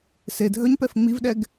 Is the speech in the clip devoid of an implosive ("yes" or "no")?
no